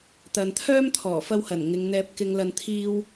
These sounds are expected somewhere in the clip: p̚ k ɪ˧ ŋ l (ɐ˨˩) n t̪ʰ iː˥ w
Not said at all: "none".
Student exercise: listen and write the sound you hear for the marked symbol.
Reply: ɐ˧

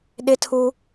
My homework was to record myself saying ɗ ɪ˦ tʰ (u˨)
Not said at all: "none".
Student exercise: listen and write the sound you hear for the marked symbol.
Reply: u˦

